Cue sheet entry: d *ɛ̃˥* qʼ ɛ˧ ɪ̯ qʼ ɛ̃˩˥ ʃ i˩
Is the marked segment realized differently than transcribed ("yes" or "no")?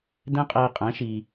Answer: no